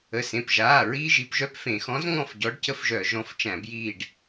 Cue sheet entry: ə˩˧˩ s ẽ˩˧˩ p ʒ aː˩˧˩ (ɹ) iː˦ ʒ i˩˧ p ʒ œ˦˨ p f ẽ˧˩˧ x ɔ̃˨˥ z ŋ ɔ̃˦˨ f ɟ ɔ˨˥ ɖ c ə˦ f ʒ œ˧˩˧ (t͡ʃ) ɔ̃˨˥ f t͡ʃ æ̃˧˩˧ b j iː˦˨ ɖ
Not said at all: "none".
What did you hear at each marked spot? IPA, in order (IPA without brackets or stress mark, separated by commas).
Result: ɹ, ʒ